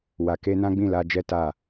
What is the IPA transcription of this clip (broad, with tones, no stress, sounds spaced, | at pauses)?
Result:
w a˨ k e˧ n ã˦ ɡ͡b ĩ˦˨ l a˧ d͡ʒ ɛ˦ t a˦˨